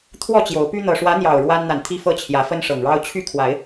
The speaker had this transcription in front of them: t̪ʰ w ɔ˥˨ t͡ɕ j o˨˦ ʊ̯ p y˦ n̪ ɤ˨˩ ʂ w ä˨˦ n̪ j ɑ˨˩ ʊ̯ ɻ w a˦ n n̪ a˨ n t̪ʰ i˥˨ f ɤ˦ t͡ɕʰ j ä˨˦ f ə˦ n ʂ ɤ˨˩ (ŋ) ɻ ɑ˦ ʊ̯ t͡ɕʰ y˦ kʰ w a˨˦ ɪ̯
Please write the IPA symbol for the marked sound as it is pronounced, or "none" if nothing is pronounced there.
ŋ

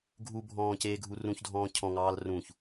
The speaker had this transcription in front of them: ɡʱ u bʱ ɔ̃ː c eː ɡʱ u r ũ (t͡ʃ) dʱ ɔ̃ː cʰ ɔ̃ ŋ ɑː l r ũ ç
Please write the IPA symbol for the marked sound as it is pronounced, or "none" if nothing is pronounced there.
ç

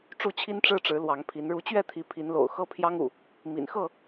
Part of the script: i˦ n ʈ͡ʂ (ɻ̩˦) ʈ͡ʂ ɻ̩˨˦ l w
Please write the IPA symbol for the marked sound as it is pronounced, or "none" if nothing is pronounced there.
ɻ̩˦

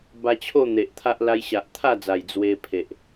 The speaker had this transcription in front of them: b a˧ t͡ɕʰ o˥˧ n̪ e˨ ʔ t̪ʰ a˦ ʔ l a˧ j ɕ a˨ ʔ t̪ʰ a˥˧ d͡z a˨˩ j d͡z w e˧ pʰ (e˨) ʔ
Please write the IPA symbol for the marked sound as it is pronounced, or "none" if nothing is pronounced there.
e˨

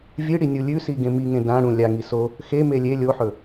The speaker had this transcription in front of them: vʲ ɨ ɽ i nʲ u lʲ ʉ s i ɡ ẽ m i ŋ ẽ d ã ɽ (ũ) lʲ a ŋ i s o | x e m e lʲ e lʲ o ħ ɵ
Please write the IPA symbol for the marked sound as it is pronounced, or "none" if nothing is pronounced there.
ũ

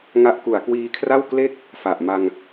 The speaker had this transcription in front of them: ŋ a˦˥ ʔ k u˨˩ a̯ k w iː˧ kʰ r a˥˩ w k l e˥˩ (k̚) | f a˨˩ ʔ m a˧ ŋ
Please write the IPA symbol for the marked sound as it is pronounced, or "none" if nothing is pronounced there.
k̚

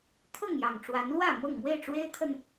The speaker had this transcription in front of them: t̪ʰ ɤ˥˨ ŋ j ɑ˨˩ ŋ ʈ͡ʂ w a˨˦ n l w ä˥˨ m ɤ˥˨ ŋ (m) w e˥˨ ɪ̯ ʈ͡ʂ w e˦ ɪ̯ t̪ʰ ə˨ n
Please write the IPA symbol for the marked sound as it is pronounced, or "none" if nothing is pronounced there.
m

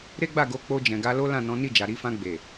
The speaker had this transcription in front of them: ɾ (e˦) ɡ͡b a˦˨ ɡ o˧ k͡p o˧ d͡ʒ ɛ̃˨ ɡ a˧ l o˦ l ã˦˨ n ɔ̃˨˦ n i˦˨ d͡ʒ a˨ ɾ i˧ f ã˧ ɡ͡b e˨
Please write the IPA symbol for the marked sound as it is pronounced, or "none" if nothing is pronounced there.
e˦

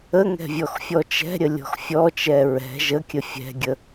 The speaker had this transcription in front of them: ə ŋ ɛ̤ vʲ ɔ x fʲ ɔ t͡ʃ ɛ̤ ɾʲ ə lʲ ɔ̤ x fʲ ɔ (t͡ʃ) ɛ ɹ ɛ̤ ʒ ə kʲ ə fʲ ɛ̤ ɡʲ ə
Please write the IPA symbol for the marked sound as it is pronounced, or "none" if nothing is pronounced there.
t͡ʃ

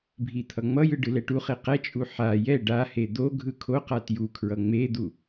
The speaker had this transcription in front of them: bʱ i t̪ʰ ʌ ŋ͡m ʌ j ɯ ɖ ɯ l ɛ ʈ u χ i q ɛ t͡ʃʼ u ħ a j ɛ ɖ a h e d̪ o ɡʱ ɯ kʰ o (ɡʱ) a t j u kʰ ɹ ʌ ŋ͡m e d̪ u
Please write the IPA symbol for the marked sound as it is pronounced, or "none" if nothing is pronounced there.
q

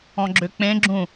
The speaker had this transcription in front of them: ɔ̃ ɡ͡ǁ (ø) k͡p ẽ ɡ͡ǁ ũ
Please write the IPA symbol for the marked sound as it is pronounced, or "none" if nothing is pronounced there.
ø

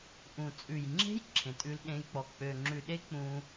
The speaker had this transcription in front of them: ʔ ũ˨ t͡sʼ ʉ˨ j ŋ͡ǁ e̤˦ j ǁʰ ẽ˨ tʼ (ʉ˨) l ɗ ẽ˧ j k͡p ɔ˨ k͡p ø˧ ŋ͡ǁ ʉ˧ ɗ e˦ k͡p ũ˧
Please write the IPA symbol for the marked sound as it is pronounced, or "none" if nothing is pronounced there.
ʉ˧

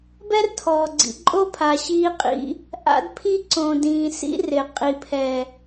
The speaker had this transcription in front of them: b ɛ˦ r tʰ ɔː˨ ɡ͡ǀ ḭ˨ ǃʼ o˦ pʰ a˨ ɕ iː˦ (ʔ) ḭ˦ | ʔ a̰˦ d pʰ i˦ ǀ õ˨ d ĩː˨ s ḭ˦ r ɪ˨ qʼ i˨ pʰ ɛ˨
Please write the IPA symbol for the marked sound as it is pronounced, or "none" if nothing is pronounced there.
qʼ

